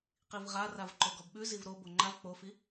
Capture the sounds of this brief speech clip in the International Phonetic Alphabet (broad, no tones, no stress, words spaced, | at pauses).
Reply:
qivʁa ravǃoɡɔbɓʉ zivɾo boŋ͡ǃav k͡pofi